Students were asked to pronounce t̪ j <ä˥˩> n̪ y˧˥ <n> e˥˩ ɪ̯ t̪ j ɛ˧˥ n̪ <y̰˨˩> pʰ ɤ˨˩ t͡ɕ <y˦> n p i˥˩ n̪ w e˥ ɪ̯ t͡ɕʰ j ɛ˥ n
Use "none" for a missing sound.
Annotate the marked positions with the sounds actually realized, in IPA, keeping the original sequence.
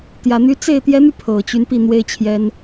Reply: ä˨˩, t͡s, y˧, y˦

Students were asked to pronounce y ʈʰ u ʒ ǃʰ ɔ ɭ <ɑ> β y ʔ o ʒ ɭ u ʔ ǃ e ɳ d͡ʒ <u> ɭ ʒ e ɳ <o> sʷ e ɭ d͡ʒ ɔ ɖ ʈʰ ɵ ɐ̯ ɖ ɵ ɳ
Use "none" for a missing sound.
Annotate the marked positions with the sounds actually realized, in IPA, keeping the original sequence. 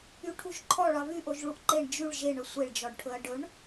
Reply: ɑ, y, ɵ

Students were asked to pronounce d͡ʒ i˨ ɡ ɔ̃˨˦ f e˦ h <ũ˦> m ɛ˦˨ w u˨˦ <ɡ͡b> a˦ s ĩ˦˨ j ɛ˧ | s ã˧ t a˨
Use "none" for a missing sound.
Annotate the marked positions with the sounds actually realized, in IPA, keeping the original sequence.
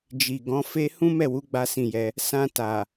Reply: ũ˦, ɡ͡b

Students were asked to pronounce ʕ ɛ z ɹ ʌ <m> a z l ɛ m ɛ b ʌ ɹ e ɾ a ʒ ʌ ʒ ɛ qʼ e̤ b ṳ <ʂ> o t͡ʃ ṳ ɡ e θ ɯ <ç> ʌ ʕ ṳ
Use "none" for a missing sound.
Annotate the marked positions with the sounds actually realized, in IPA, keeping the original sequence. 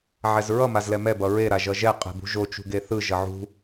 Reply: m, ʒ, ʒ

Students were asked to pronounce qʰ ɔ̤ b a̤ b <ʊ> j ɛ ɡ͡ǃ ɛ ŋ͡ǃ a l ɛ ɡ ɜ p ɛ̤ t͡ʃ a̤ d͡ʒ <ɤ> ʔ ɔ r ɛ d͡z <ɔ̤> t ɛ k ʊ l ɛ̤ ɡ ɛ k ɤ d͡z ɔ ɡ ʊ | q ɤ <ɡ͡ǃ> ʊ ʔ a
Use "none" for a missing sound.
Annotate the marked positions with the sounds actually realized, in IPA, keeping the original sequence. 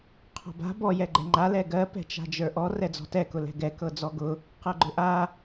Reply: ɔ, ə˞, ɔ̤, ɡ͡ǃ

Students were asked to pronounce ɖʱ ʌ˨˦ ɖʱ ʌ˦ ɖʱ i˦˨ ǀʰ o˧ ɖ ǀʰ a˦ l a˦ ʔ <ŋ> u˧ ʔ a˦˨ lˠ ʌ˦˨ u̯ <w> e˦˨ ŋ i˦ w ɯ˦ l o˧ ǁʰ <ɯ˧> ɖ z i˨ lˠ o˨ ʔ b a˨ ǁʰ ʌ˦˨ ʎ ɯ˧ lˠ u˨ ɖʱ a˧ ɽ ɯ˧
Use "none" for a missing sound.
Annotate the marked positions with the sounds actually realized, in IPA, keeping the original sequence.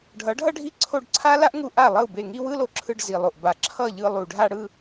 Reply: ŋ, b, ɯ˧

